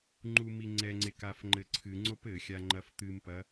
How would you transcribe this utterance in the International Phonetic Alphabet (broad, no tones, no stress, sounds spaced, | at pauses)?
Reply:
ŋ͡ǃ u m i ŋ͡ǀ ɛ ŋ͡ǀ e k a f ŋ͡ǃ ɘ ǀʰ ɨ ŋ͡ǀ o p ɘ xʲ a ŋ͡ǃ ɐ f t̪ ɨ m p ɐ